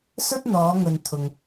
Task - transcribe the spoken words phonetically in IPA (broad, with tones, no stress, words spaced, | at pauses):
sɵ˥t̚n̪ɔː˨˧ŋɵ˨n t̪ʰʊ˨ŋ